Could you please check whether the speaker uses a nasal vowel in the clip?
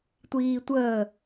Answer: no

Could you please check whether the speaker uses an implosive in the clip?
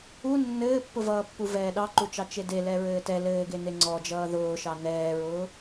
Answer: yes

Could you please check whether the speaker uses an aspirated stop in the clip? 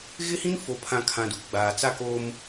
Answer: yes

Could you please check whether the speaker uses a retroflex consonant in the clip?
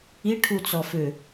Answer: yes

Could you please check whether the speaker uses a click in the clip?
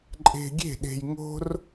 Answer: yes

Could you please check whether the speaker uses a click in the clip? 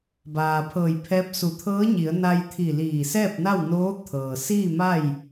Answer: no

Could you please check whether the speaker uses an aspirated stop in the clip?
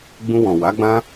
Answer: no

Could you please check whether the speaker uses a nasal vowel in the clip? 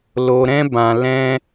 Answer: yes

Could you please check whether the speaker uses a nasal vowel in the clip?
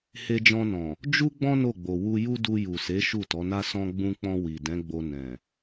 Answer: yes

